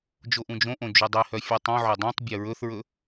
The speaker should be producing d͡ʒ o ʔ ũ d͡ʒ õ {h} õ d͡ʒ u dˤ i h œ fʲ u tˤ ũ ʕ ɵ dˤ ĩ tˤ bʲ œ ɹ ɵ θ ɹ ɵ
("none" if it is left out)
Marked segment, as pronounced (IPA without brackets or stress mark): ʔ